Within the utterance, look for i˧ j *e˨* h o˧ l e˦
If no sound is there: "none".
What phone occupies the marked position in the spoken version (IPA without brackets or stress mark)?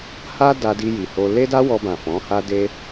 i˨